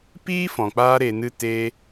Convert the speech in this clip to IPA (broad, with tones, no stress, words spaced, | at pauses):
piː˦fɔ̃˨k͡paː˧ ɾe˨nɨ˧ te˧